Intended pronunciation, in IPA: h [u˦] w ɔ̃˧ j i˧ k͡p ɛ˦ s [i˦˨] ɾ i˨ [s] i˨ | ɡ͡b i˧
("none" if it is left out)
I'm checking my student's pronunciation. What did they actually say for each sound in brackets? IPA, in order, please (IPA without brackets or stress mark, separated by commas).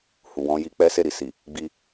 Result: u˨, e˦˨, s